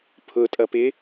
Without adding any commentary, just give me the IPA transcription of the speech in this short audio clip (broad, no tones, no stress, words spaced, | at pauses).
pʰʊtʼʌ pɪ